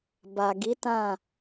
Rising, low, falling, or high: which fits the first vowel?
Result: low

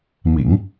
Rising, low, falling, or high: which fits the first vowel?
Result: low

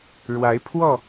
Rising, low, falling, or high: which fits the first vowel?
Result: rising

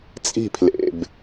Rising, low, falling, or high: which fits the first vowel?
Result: falling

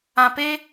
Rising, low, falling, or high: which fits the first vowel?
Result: low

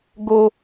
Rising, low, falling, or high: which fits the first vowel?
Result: high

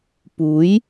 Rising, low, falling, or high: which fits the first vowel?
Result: rising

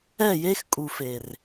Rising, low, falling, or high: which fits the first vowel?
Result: falling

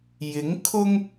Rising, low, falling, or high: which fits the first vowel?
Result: rising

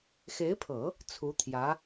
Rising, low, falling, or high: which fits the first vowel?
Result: rising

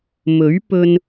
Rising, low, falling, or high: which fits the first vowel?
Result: rising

